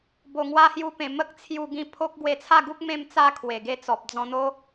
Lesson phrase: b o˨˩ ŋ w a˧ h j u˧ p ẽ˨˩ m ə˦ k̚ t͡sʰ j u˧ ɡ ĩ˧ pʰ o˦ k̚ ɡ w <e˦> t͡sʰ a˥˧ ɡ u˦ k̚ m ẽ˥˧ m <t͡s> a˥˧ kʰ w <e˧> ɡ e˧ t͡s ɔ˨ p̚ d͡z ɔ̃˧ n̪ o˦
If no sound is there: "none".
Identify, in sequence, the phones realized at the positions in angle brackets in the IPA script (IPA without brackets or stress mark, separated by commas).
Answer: e˧, t͡s, e˨˩